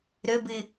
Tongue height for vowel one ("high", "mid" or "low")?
mid